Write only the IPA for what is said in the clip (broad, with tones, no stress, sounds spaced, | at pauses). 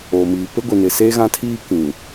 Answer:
oː˨ m iː˨ p e˦ ɡʷ i˨ n ɪ˨ s eː˦ ɣ ã˦ tʰ iː˦ k ĩ˨